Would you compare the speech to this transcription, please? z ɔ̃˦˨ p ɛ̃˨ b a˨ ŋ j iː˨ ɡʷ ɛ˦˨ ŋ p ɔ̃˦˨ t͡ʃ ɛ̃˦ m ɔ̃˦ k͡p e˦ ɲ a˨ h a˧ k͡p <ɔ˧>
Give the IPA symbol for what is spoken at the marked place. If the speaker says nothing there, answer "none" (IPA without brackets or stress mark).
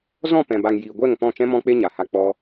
ɔ˧